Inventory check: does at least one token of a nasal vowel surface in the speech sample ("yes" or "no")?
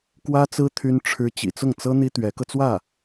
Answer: no